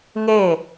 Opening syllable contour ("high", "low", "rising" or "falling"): falling